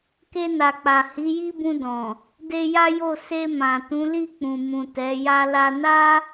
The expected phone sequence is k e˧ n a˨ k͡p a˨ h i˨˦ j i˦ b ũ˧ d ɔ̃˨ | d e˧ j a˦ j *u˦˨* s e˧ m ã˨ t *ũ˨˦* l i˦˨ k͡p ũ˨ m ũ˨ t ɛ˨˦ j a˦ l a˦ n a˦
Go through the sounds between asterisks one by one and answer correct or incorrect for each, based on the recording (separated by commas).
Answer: incorrect, correct